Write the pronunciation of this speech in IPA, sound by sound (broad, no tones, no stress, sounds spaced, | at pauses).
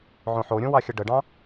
ʕ õ ħ o ɾʲ õ w ɑ xʲ ə ɖ ə ɖ ɑ̃